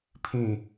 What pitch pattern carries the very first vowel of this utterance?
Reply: falling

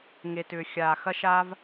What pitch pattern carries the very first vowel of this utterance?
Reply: low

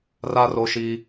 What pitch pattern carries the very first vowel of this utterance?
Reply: high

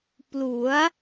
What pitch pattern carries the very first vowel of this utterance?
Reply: rising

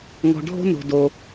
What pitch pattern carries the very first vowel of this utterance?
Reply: low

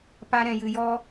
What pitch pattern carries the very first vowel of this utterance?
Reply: high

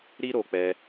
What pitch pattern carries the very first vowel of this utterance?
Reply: high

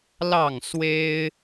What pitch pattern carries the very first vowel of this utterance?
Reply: falling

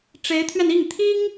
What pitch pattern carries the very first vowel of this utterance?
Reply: rising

